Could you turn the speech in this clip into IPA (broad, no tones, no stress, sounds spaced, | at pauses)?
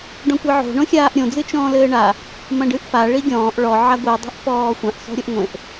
ɖ ɔ̃ kʷ e ʕ o̤ ɳ õ xʲ aː ʔ ɾʲ õ d͡z ɨ t͡ʃ ɔ̃ː l ɘː ɳ a | m ɐ̃ ɖ ɨ ʔ f a ɭ i ɡʲ ɔ̃ː ʔ ɭ ɔ ʕ a ɡʷ i dˤ e̤ ʔ f ɔː xʷ ã ʔ s ɔ̤ ɾʲ o ʔ ŋʷ ẽ ʔ